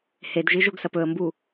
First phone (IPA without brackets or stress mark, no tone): h